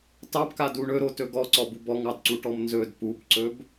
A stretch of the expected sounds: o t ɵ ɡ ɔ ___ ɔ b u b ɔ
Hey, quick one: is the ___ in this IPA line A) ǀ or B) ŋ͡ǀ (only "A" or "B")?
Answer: A